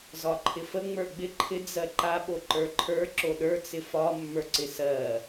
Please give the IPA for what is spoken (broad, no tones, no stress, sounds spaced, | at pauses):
z ɒ ǃʰ ɪ f ə ŋ͡m ə˞ ɡ͡b ɪ ǃʰ ɪ d͡z ɜ ǃ a ɓ o ǃ ə˞ ǃʰ ə˞ ǁ o ɗ ə˞ t͡s ɪ f ɒ mː ə˞ ǀ ɪ s ɜ